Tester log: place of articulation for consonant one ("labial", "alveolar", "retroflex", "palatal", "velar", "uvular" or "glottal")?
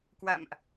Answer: velar